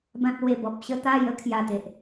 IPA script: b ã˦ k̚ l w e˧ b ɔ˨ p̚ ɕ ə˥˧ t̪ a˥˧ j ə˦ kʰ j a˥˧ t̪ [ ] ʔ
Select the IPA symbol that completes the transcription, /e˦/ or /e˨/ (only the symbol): e˨